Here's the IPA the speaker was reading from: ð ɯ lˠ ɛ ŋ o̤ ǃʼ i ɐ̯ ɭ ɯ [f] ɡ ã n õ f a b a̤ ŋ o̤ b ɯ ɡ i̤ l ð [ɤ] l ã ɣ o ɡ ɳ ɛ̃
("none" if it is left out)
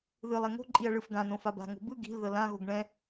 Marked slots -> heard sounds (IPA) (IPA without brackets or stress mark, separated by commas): f, ɤ